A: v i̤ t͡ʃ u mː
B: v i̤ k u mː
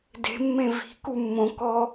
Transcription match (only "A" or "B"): B